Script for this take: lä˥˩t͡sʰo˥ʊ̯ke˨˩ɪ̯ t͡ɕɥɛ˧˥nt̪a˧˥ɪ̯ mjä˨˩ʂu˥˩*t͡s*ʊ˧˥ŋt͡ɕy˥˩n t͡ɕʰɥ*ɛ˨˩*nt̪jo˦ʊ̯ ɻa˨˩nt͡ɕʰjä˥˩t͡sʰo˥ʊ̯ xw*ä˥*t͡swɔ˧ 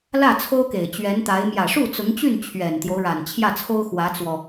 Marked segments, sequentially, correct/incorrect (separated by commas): correct, correct, incorrect